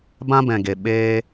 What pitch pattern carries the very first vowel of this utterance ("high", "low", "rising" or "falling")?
high